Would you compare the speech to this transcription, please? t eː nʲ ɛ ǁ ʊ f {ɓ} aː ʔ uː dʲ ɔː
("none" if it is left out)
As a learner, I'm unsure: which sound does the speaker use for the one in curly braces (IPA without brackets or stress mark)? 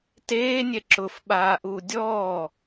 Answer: ɓ